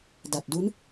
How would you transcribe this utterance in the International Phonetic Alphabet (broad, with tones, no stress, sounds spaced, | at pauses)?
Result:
d a˨˩ t̚ d u˦˥ n